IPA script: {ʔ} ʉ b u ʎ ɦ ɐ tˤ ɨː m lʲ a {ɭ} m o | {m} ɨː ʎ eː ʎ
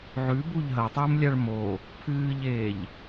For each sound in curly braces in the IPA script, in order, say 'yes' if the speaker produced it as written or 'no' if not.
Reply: no, yes, no

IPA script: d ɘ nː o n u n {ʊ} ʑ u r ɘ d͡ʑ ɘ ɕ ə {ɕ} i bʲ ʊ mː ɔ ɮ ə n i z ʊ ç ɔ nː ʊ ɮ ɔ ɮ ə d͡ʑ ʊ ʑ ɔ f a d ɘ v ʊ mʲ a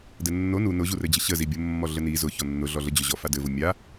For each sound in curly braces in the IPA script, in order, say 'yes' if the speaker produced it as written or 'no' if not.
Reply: yes, no

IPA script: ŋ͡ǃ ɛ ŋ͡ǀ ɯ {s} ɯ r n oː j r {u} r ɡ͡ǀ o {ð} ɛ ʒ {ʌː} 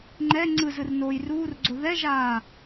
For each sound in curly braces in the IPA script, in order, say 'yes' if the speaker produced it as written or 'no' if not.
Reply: no, no, yes, no

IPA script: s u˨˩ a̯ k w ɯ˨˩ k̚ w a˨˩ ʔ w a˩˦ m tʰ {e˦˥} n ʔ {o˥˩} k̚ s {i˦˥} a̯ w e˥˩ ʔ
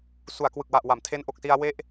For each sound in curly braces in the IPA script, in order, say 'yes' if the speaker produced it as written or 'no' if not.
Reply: yes, no, no

